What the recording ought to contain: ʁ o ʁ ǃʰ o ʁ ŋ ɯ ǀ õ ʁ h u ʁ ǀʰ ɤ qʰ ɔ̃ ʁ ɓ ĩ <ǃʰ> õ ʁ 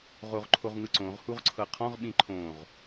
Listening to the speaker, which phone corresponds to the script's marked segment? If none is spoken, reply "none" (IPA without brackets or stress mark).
ǃʰ